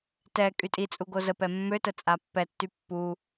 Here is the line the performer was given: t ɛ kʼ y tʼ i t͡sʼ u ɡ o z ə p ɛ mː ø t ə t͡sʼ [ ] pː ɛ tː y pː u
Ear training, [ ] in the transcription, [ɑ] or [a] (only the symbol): a